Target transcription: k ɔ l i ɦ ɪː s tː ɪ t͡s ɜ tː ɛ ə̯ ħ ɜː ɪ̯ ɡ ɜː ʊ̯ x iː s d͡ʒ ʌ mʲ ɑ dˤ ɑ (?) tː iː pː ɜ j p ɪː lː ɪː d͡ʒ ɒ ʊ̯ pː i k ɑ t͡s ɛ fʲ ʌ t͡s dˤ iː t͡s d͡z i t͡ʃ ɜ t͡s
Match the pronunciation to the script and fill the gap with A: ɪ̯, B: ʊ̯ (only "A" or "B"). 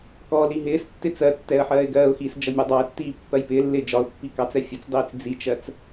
A